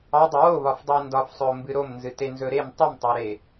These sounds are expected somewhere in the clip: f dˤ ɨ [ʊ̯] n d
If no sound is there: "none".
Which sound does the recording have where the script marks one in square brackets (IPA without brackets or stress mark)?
ɪ̯